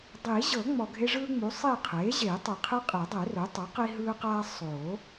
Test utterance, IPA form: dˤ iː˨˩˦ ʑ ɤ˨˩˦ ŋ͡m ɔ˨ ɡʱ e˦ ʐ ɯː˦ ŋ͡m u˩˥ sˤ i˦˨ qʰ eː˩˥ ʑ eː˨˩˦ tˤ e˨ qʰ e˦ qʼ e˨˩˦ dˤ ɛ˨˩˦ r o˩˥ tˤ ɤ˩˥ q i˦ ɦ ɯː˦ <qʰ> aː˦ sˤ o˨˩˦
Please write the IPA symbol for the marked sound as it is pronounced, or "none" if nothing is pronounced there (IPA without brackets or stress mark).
q